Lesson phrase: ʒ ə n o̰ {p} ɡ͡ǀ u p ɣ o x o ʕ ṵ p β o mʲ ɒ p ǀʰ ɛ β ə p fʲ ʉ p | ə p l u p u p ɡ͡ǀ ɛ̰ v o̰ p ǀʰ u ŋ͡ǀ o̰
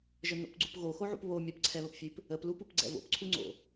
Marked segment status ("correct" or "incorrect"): correct